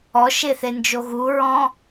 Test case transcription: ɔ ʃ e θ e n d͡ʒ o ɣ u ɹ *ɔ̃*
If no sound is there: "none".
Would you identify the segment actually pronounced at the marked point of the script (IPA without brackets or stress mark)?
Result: ɔ̃